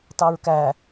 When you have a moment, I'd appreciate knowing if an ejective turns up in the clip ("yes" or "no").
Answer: no